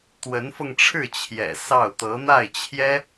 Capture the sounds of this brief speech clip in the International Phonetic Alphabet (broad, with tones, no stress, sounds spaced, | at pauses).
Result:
t̪ w ə˧˥ n f ɤ˧ ŋ ʈ͡ʂʰ ɻ̩˥˩ t͡ɕʰ j ɛ̰˨˩ s ɑ˥˩ ʊ̯ t̪ ɤ˧˥ n̪ a˥˩ ɪ̯ t͡ɕʰ j ɛ˥